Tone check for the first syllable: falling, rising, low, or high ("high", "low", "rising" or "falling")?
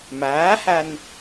rising